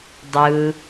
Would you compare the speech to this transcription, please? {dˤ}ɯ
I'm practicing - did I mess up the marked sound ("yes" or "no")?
no